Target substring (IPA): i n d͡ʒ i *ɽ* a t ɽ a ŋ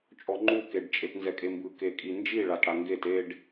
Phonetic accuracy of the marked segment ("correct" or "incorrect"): incorrect